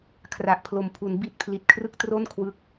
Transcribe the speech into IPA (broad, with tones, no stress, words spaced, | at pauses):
kʰra˨˩ʔpʰlo˩˦mpʰu˩˦n bi˦˥t̚ pʰli˨˩t̚kʰrɯ˦˥k̚ tro˥˩n kʰwɯ˦˥k̚